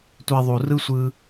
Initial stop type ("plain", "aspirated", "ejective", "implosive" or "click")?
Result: plain